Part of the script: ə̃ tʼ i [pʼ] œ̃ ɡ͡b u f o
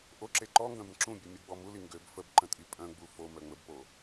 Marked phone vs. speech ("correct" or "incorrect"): correct